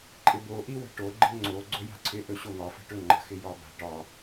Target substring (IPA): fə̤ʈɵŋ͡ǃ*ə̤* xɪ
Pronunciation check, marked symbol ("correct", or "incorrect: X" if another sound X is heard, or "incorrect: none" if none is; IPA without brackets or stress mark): correct